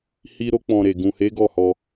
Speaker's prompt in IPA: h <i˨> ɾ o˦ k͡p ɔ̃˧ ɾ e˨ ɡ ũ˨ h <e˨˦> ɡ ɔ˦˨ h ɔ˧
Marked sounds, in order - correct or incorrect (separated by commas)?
incorrect, correct